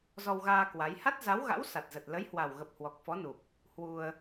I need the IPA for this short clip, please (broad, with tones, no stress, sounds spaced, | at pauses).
z ɔ˧ w ɣ aː˧ k w a˨˦ j h a˦˥ t̚ z a˨˦ w ɣ a̰˧˥ w s a˨˩ t̚ z ə˨˩ t̚ l ə˨˦ j h w a˨˩ w ɣ ə˨˩ p̚ h w ɔ˨˩ k̚ f ɔ˨˦ n u˨˩ p̚ | h w u˧ ə̯